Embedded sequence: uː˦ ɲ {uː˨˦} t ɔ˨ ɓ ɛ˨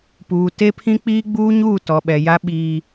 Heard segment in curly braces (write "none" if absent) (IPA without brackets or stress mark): uː˦˨